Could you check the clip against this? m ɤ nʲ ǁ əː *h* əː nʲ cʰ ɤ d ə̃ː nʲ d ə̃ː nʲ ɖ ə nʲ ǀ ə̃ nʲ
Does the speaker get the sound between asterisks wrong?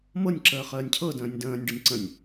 yes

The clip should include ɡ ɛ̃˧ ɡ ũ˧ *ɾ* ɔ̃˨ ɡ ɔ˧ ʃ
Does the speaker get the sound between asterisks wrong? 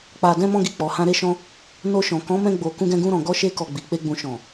no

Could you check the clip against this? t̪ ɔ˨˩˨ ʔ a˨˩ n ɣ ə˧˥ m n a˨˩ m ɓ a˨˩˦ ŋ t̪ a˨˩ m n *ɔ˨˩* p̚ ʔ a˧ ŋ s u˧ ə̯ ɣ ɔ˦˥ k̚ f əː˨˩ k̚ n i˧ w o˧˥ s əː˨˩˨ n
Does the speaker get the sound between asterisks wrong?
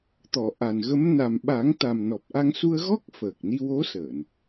no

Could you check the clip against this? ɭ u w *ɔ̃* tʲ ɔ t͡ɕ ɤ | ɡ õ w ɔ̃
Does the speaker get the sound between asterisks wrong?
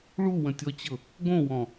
yes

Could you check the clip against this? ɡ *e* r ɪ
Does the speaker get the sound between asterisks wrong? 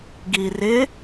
yes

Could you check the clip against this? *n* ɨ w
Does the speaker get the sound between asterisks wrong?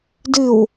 yes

